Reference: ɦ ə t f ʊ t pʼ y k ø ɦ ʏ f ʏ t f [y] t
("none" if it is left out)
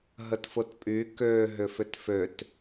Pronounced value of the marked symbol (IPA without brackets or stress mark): ø